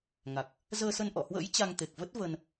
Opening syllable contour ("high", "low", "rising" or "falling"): low